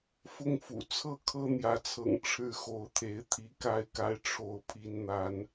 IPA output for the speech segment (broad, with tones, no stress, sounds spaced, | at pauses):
f ʊ˥˨ ŋ f ṵ˨˩ t͡sʰ ɤ˥˨ kʰ ɤ˦ n̪ j ä˨˦ t͡sʰ ɤ̰˨˩ ŋ ʈ͡ʂʰ ɻ̩˥˨ x o˨˦ ʊ̯ t̪ʰ e˨˦ ɪ̯ t̪ʰ i˨˦ k a˥˨ ɪ̯ k a˦ ɪ̯ ʈ͡ʂʰ o˥˨ ʊ̯ pʰ i˨˦ n n̪ a˨˦ n